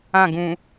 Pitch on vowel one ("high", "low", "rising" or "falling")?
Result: falling